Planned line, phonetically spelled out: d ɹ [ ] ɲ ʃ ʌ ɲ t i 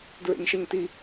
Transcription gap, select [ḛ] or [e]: ḛ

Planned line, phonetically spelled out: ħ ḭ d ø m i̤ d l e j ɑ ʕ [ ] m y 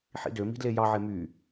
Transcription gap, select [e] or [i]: e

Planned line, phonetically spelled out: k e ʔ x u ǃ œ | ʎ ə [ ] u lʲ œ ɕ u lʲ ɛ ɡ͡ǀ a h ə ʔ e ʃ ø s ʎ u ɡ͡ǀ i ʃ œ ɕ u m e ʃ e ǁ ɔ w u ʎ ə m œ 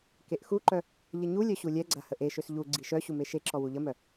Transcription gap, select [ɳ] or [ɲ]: ɲ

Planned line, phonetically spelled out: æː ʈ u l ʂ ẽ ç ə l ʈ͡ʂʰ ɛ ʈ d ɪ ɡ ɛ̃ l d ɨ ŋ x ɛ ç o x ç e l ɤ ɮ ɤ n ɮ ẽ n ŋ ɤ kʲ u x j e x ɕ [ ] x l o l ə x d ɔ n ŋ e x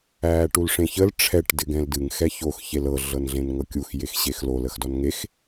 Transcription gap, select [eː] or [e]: e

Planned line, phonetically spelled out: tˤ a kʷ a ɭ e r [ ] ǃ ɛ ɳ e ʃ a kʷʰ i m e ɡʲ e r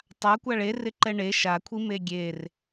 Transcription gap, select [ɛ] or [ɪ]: ɪ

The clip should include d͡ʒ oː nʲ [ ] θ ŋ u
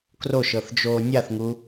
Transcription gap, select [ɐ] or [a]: a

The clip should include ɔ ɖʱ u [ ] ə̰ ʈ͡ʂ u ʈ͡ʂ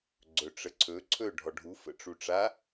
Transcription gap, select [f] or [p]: f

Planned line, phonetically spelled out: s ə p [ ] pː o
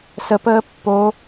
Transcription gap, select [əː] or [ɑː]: əː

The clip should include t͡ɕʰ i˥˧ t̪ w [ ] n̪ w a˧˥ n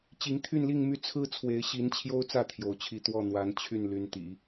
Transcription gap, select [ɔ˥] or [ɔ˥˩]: ɔ˥˩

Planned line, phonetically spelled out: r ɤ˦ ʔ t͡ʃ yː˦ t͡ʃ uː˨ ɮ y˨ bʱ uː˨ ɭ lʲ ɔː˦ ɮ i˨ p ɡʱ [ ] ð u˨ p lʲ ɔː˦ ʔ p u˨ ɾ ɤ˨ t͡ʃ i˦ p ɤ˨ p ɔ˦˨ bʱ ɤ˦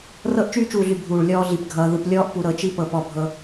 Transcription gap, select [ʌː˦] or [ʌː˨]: ʌː˨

